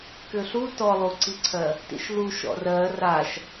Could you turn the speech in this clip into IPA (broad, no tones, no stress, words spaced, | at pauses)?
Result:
kʏɬu tɔlˠuǀiǀʰɜ | tḭʃlu ʃɔ̰rɜ raʃ